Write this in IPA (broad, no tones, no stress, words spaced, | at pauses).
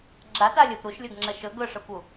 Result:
ɡ͡ǁata lʲɵp ɾuʃlʲɵɡŋ͡ǁə ʃɵ ɡɵʂɵkʷu